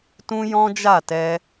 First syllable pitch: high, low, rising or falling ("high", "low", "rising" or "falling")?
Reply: high